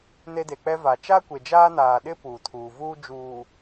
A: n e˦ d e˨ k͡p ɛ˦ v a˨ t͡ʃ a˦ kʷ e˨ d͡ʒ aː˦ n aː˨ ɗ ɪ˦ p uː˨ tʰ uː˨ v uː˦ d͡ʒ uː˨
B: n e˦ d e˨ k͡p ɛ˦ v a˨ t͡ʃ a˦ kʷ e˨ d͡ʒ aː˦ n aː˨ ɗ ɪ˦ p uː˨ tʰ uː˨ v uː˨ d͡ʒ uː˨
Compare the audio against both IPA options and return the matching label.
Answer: A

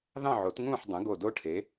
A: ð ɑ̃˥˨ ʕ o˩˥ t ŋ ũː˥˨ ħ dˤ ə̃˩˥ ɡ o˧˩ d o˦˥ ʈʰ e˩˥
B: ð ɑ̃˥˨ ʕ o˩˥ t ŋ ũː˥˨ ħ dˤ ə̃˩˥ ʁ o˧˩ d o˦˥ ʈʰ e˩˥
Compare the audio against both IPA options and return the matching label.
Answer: A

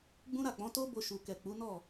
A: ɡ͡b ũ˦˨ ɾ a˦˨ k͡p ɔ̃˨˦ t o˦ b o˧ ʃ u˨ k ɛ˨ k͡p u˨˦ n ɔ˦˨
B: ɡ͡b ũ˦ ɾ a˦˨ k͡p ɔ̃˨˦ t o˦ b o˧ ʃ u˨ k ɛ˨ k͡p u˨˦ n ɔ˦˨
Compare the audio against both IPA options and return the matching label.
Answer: B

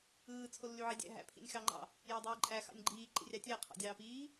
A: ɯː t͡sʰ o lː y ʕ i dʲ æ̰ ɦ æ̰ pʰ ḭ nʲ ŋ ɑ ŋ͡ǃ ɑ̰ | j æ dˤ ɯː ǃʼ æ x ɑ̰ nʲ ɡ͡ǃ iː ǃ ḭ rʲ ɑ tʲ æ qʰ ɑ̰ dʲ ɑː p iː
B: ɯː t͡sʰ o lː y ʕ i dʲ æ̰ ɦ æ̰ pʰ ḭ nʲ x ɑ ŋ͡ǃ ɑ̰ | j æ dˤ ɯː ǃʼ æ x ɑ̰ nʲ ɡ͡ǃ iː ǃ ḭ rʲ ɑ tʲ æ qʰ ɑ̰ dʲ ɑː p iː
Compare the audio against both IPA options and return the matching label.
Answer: B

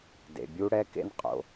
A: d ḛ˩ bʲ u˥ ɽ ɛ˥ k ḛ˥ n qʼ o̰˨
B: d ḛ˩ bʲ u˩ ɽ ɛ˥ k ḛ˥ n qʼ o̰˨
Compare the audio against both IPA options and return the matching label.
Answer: A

